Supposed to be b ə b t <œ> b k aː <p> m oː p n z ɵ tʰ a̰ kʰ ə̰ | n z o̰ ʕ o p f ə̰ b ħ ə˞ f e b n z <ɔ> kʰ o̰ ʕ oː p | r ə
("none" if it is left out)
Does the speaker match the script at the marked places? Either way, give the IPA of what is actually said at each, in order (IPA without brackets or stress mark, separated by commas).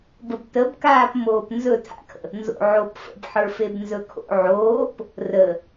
ə, p, ɵ